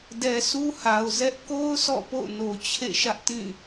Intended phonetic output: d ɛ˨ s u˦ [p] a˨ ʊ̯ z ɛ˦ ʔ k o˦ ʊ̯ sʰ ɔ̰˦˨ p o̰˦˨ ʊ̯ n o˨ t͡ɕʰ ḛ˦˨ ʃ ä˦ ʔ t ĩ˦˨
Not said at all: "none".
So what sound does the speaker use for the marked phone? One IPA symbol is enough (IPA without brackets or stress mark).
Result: h